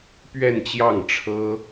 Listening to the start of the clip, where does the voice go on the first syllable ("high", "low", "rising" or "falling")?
falling